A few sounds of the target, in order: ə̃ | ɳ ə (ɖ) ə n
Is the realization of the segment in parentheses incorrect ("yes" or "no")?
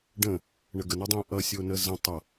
yes